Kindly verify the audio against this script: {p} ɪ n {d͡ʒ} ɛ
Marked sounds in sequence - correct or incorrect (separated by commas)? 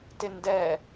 incorrect, incorrect